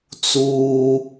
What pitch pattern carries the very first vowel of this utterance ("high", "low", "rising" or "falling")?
low